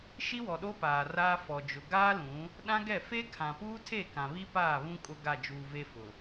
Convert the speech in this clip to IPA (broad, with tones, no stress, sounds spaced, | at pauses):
ʃ i˦ w ɔ˨ ɗ o˦ p aː˨ r aː˦ f ɔ˨ d͡ʒ ʊ˨ ɡ aː˦ l ũ˨˦ | ɗ ã˦ ɡ ɛ˦˨ f e˦ kʰ ã˨ p uː˦ tʰ e˦˨ k ã˨ β i˦ p aː˦˨ β ũ˦ kʼ ʊ˦ ɡ a˦˨ d͡ʒ uː˨ v e˦ f ʊ˨